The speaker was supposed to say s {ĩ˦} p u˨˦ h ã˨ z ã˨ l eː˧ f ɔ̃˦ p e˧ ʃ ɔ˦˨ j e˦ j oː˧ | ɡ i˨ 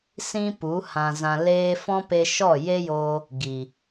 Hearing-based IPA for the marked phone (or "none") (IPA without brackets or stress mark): ĩ˦